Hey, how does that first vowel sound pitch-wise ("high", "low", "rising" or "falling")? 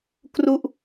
falling